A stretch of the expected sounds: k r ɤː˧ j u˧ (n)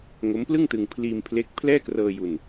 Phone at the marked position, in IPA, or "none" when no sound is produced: n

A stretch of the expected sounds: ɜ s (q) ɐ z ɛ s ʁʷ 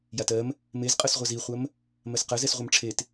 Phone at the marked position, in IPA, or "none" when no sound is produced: q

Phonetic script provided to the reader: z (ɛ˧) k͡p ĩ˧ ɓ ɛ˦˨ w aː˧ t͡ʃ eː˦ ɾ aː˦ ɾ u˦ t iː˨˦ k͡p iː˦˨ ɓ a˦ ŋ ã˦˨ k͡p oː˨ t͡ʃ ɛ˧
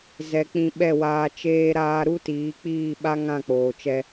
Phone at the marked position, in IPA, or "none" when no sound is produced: ɛ˨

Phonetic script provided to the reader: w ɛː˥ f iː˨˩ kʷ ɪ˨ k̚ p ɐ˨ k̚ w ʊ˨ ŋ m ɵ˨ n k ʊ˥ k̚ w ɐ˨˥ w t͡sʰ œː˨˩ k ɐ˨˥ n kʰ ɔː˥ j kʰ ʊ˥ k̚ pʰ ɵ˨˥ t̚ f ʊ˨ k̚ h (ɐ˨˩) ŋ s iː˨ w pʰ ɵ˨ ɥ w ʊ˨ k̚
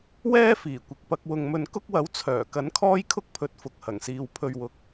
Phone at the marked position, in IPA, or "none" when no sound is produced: ɐ˨˩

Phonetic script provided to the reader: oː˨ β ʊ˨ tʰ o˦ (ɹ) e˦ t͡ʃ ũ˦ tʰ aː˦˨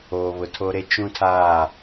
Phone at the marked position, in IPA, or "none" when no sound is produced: ɾ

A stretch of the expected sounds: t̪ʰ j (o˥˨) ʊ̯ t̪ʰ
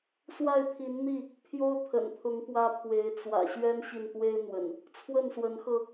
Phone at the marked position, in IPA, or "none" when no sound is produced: o˦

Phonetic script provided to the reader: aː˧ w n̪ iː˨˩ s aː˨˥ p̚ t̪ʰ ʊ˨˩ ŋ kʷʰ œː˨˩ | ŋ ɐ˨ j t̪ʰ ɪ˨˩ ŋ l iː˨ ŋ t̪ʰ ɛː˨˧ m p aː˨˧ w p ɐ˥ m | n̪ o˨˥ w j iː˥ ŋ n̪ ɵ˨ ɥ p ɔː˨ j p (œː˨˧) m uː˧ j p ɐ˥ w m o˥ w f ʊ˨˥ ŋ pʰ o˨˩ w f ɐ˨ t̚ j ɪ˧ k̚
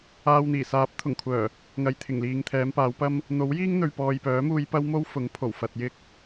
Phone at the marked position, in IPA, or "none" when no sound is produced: œː˨˥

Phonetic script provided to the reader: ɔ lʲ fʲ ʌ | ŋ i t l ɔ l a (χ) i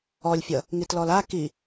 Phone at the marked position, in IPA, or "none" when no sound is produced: k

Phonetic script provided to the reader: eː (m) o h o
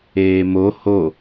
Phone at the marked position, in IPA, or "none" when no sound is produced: m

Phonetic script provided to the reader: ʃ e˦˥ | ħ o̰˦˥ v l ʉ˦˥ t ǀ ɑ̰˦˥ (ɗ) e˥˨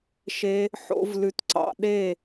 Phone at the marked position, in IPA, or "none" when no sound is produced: ɗ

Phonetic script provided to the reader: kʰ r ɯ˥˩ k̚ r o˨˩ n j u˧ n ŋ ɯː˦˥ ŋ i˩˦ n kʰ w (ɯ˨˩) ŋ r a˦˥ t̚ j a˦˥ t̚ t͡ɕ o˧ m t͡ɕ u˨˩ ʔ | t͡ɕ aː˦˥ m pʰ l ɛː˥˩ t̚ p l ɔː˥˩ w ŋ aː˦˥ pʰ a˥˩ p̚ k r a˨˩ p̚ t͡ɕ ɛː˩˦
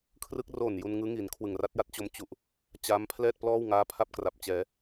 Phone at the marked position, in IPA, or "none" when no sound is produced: ɯ˨˩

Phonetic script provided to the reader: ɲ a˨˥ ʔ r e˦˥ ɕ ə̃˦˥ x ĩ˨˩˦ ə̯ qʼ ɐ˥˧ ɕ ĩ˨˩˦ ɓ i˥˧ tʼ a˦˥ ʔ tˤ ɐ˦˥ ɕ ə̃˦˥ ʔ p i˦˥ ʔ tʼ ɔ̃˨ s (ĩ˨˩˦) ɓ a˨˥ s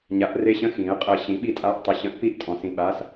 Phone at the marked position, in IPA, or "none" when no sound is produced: ĩ˨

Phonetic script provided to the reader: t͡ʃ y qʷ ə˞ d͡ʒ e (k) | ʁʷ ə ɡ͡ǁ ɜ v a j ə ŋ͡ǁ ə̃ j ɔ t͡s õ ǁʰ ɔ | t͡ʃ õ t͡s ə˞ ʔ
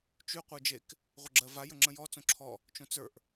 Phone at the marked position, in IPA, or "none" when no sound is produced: k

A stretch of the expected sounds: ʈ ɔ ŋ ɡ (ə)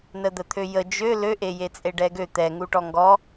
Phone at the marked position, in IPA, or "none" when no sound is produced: ɔ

